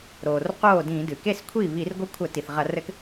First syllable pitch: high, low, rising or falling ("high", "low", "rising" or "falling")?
low